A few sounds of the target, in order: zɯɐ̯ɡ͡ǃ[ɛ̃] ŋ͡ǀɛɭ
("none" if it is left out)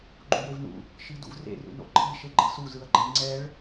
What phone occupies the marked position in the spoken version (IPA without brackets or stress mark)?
ɛ